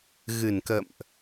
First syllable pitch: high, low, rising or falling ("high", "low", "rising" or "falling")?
low